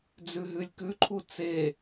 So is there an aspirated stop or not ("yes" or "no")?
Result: yes